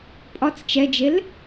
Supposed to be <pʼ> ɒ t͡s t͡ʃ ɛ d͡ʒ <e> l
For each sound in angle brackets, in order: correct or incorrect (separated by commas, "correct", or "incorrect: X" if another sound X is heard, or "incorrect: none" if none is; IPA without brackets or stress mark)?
correct, correct